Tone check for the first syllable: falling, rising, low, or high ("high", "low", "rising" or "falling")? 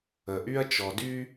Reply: low